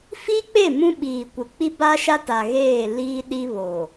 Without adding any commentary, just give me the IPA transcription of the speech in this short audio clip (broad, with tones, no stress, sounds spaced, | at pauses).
f i˦ k͡p e˦˨ m ũ˦ ɓ iː˨ kʷ ɪ˨ k͡p i˦ b a˦ ʃ a˦ t a˨ ɣ eː˦˨ l iː˦ ɗ i˦ β o˨